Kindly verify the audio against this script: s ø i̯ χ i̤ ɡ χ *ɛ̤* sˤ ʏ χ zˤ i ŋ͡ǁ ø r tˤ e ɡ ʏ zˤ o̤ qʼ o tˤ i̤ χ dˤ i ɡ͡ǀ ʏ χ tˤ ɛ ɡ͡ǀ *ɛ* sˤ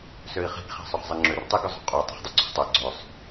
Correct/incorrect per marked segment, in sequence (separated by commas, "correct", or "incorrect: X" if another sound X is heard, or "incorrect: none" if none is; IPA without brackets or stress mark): incorrect: e̤, incorrect: ø